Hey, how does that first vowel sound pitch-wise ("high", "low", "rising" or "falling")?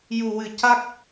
low